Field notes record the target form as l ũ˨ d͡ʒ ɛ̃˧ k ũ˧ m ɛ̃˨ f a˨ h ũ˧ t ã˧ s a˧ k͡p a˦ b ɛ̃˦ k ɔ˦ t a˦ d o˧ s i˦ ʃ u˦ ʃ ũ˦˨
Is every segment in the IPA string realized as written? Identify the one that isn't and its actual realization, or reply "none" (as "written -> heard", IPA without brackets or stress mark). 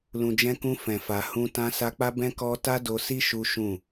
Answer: m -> f